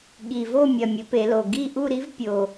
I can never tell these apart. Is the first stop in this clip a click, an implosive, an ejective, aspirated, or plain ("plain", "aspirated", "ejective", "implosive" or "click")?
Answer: implosive